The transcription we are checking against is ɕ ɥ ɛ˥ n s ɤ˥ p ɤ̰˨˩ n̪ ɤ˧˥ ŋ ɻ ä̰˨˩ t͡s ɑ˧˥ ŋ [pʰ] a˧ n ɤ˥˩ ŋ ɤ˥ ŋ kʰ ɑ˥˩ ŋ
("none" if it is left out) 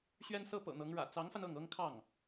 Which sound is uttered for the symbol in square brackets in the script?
f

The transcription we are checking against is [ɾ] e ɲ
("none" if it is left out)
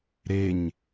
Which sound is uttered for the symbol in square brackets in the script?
ɾ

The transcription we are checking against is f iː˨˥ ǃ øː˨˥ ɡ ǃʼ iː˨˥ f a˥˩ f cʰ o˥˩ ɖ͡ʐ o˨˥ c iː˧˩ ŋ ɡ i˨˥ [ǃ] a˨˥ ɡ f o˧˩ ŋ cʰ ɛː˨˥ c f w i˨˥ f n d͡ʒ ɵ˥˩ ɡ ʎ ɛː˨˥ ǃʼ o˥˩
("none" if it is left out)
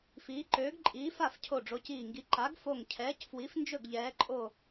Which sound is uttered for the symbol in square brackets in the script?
ǃ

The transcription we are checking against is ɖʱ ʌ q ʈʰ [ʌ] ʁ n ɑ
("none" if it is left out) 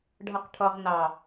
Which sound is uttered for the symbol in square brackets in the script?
ʌ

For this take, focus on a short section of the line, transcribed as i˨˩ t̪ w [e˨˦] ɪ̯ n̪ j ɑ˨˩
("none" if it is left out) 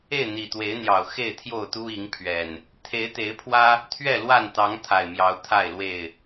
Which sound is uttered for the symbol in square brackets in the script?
e˨˦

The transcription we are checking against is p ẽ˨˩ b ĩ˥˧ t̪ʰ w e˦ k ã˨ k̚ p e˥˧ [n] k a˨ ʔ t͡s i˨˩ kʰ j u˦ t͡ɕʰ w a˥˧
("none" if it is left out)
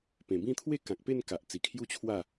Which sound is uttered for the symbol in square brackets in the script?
n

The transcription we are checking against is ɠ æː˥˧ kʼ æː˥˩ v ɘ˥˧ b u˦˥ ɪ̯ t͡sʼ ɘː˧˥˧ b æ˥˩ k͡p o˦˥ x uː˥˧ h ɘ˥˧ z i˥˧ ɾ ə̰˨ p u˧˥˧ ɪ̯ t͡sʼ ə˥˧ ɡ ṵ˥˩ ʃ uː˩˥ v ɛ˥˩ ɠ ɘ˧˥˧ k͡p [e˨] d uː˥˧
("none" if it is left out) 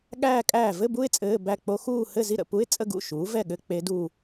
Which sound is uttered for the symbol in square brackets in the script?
e˦˥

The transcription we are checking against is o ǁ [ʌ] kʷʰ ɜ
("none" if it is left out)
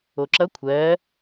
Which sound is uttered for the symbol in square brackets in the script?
ʌ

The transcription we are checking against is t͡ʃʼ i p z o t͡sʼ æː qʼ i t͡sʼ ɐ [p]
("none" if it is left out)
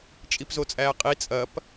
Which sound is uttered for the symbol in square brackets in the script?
p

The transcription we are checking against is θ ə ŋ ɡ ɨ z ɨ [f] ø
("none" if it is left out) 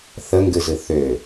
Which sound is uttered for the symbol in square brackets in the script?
θ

